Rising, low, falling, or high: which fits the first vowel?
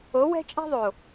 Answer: rising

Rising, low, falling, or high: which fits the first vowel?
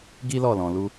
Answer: high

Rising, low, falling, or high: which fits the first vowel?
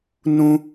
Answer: low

